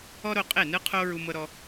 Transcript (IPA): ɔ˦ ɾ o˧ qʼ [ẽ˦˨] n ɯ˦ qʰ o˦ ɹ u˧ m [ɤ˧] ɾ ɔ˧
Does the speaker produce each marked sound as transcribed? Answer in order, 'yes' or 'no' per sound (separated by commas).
no, yes